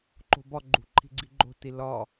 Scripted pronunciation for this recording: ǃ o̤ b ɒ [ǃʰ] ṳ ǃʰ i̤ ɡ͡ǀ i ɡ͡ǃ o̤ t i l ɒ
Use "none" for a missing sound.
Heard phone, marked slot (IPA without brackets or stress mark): ɡ͡ǃ